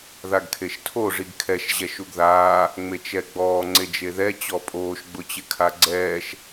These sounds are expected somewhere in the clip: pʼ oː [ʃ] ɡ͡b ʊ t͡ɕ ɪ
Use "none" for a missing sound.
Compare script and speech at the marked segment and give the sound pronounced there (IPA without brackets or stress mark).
ʃ